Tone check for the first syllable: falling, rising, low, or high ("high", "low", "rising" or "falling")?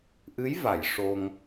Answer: rising